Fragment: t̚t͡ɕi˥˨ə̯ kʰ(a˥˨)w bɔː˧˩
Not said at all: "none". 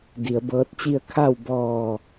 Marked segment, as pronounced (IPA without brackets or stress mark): a˥˨